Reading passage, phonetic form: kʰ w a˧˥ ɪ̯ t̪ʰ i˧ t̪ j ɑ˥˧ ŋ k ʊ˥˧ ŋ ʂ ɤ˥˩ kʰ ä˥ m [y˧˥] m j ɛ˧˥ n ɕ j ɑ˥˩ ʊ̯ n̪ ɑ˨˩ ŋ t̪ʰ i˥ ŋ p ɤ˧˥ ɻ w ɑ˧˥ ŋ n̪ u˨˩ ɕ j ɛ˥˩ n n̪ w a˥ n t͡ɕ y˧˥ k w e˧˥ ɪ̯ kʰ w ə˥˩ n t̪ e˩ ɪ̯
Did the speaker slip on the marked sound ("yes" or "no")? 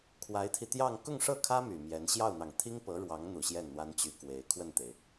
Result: yes